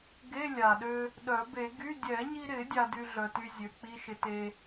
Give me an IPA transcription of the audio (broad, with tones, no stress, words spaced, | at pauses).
ɡe˧˥˧lʲa˨˩ɗø˧ | ɗœ˨˩˦be˨˩˦ ɡy˧˥˧ dʲɛ˨˩˦ɲi˧ɾɪ˨˩˦ dʲa˧dy˧ɮœ˨˩ty˧ zʲø˩˥k͡pi˧˥˧ʃɪ˧te˧